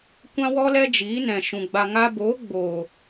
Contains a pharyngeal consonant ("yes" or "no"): no